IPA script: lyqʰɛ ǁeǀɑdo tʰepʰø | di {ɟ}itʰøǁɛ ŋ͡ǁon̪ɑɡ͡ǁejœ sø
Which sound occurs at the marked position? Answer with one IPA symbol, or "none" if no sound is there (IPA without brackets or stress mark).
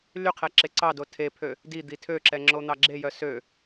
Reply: d̪